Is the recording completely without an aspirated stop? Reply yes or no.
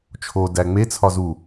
no